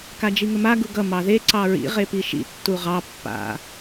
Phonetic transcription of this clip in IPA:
kad͡ʒiŋəma ɡuɡʌ mɑðe ǀɑɹḭ ʁepiʃḭ tːuʁɑ pːa̰

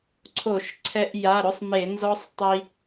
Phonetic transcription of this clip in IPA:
ǀʰo˧˩˧ʃǀʰɛ˧ʔ ja˩˧˩ɾʊ˥˧sˤme˧˩˧ nzɔ˦˥sˤ tˤi˧

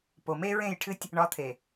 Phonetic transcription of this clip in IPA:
po˨me˦ɹẽ˦˨jʈʰɨ˦tʲ | ɳɒ˨˦t̪ʰe˨

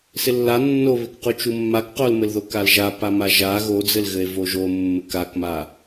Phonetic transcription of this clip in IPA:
sɪlːa nːoβɪkqu t͡ʃumːak qolmɘlðo kalʒa pamaʒa ɣod͡zɘlɣɘe̯ voʒo mːɘkakma

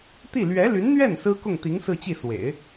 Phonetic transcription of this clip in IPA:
t̪i˥˩ lɥɛ˧˥ly˧˥nn̪ɥɛ˥˩n sɹ̩˥kʊ˥˩ŋ t̪i˧˥ŋ sɹ̩˥˧t͡ɕi˥˩ swḛ˨˩˦ɪ̯

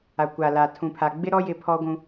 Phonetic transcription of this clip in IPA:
a˨kʷa˨ la˨ tʰũ˨pʰa˨ɡ͡bɪ˦ɾɔ˦ jɪ˦pʰɔ˦ɡʷũ˦

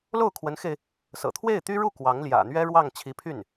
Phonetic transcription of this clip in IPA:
lo˥˩ʊ̯kʰwə˧˥nxe˧ɪ̯ | sɤ̰˨˩t̪ʰwe˥˩ɪ̯t̪y˥ɻu˥˩ kwɑ˧˥ŋljä̰˨˩n̪ɥɛ˥ɻwɑ˥˩ŋ t͡ɕʰi˧˥pʰy˥˩n

